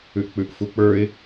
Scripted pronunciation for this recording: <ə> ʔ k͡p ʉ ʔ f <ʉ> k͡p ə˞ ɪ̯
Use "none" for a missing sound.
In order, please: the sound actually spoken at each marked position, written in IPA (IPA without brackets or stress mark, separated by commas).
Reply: ʉ, u